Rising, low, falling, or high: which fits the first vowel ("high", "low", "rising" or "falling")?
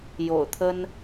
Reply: low